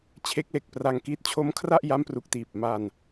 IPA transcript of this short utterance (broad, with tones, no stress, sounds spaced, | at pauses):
t͡ɕʰ e˦˥ k̚ l e˨˩ k̚ p r a˧ ŋ k iː˦˥ t̚ t͡ɕʰ o˦˥ m kʰ r a˥˩ ʔ j a˦˥ m p r u˨˩ k̚ t iː˨˩ p̚ m a˧ n